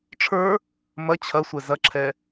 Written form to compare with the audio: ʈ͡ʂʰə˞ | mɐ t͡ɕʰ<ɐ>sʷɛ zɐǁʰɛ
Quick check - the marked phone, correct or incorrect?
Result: correct